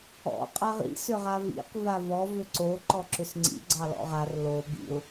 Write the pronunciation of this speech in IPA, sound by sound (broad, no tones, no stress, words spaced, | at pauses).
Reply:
ɔ̰ qʼaʁḭ sʏʁavḭq vavɔv ʏǀo ǃɔǁʏsŋ͡ǀḭ ɡ͡ǀɑlɔ̰ʁar lo bḭʊ̯